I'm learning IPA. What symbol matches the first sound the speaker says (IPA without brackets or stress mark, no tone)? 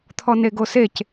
t̪ʰ